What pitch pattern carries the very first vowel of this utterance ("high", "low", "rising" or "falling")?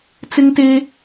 high